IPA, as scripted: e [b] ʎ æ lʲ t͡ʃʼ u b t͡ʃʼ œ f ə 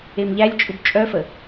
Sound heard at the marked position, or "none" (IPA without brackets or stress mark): m